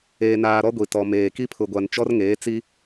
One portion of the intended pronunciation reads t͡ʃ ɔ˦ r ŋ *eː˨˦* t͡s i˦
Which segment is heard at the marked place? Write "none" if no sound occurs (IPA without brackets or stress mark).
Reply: eː˨˦